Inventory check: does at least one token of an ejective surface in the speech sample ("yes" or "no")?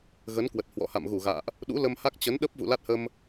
no